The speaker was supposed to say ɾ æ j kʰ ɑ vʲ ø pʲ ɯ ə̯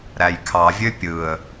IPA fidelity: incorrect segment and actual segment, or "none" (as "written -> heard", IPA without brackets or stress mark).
none